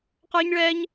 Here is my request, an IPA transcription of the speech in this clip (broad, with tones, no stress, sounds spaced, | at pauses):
q ə˞˥ ɲ ɭ ɛ˥ ɲ